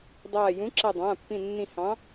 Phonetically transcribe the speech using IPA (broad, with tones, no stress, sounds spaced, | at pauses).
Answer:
dˤ aː˧˩ j ũ˨˥ ǁ a˧˩ dˤ ãː˩˧˩ pː ĩ˧˩ nː ĩ˧˩ h ɑ̃˨˥